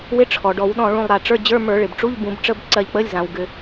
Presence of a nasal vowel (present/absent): present